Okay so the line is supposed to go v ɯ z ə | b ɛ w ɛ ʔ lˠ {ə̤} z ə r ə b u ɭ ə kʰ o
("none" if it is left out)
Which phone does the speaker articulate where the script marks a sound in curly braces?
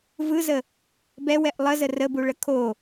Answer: ə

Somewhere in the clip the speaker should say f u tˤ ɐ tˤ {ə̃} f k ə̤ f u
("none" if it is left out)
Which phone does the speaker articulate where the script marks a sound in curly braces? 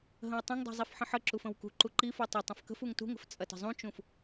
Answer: ə̃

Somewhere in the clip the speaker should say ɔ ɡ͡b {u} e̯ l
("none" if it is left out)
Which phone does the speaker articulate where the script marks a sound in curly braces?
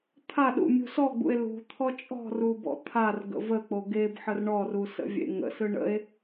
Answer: ṵ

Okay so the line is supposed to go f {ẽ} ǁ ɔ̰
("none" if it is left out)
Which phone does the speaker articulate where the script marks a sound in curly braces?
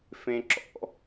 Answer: ẽ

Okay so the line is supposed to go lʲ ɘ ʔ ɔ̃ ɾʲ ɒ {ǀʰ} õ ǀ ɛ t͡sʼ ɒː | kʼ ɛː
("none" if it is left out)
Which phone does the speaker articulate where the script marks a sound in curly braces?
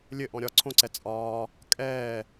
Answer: ǀʰ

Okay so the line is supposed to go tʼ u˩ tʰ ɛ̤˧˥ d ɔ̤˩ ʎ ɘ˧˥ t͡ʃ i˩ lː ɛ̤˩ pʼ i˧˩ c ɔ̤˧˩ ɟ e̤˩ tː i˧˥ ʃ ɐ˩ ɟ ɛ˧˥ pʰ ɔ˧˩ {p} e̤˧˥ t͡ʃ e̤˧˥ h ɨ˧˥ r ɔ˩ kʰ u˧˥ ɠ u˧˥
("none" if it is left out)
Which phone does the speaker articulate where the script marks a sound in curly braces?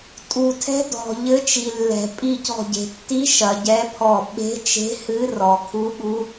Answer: ɓ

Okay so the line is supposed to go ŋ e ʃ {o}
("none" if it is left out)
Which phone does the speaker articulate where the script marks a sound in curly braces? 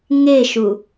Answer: u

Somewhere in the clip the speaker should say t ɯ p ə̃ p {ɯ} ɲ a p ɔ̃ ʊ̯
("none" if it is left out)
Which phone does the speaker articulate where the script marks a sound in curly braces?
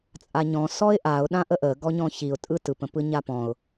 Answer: ɯ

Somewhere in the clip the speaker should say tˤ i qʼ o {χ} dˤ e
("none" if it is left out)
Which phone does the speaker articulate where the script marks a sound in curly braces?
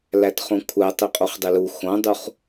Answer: χ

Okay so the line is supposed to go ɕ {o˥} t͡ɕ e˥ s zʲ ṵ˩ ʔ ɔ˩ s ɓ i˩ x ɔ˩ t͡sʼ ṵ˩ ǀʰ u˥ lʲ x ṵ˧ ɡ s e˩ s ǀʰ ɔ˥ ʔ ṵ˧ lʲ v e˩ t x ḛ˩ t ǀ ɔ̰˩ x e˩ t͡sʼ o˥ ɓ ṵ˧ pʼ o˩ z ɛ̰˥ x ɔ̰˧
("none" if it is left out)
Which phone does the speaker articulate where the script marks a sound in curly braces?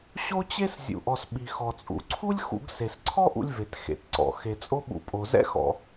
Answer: o˥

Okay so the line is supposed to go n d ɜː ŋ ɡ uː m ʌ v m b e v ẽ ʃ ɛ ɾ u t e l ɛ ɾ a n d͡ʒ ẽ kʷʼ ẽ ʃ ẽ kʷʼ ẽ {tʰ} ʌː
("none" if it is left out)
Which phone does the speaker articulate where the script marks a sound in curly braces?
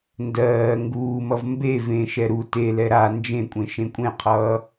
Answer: qʰ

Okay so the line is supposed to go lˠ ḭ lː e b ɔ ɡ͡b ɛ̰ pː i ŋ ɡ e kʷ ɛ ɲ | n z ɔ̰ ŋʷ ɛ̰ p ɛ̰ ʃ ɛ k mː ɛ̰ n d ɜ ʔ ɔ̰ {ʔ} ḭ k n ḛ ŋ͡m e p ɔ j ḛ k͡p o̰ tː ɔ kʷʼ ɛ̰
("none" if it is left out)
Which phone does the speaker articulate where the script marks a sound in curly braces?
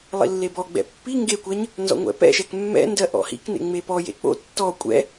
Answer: h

